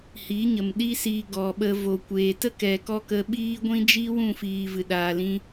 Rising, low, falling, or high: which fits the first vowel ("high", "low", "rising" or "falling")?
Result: rising